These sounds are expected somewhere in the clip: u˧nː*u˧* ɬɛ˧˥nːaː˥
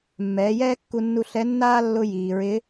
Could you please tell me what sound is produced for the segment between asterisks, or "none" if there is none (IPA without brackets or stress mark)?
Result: u˧